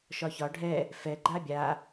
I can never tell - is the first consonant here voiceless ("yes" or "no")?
yes